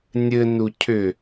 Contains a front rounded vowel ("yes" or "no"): yes